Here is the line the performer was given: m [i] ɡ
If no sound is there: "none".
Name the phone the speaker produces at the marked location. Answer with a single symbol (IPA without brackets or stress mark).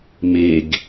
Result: e